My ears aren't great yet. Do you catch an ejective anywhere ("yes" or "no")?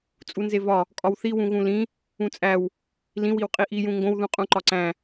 yes